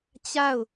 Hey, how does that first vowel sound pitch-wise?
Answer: falling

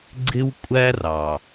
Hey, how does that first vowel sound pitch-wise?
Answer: high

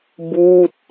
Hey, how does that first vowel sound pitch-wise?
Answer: falling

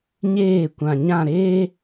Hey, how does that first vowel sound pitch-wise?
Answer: falling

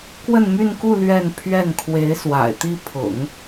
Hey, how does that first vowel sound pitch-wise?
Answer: falling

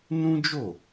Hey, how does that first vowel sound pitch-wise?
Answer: high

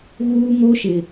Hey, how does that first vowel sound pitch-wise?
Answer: high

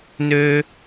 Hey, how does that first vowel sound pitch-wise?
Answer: high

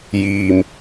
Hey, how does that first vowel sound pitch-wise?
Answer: low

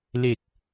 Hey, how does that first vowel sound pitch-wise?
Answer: low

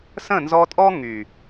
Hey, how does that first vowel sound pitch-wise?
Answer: falling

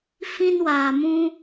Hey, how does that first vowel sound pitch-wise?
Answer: high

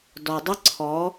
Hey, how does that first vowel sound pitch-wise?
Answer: low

